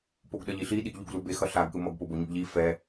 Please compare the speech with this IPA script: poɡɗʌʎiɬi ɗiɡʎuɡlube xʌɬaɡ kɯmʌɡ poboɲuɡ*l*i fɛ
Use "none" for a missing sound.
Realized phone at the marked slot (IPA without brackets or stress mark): ʎ